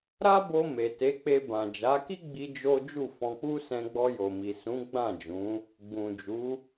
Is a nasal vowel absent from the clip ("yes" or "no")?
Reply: no